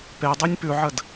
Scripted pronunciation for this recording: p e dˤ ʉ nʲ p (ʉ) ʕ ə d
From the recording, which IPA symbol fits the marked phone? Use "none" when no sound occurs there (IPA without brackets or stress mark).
ʉ